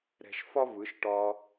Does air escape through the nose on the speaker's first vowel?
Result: no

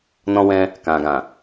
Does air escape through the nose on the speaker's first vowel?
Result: yes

